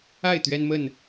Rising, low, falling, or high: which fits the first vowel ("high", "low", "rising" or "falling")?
falling